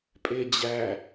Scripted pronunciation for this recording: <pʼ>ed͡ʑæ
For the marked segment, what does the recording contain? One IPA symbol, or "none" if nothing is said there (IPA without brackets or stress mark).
pʼ